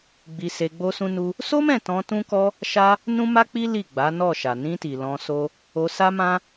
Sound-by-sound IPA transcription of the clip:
ɡ͡bi˧se˧ ɡ͡bo˦sũ˦nu˦ | so˦mɛ̃˦˨ tɔ̃˧tũ˦kɔ˦ | ʃa˦ | nũ˦ma˦k͡pi˦ li˦˨ ɡ͡ba˨˦nɔ˦˨ʃa˨ nĩ˧ti˨ lɔ̃˧so˦ | o˧sa˦mã˦

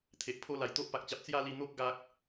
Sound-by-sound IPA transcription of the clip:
t̪ʰe˨ʔpʰo˦ la˨˩jt̪o˦ʔpa˨k̚t͡ɕa˨p̚ t͡sja˥˧li˧n̪o˦k̚ ɡa˦k̚

